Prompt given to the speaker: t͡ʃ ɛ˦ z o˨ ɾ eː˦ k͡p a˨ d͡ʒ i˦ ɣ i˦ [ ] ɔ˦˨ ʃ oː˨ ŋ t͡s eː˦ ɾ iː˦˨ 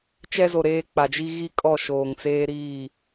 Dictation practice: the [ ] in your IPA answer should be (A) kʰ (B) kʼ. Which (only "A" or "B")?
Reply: B